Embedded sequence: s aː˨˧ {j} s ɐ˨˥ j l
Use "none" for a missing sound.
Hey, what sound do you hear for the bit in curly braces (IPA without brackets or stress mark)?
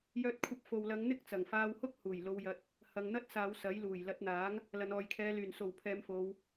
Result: w